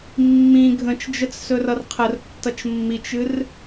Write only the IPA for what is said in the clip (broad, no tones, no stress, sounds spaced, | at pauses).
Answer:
mː ĩ ɡʱ ə̃ t͡ʃ d͡ʒ ə t͡s s ɵ r ʌ r qʰ ə r tː ʌ t͡ʃ mː i t͡ʃ ɨ r